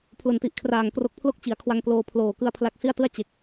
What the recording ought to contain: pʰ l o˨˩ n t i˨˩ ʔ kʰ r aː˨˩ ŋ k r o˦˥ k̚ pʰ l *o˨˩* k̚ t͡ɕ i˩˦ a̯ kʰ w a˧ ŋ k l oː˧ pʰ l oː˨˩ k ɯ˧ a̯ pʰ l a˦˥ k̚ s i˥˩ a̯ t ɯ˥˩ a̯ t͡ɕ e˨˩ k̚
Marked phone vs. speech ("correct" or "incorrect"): incorrect